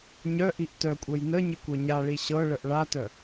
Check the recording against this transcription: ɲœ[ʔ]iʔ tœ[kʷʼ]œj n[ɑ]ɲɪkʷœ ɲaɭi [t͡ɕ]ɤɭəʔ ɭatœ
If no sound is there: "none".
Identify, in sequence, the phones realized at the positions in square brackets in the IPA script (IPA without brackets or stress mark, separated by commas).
ʔ, kʷʼ, ə, ɕ